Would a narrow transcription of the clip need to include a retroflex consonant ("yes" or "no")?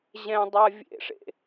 yes